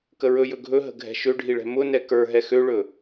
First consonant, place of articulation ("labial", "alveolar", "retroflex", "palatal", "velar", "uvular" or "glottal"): velar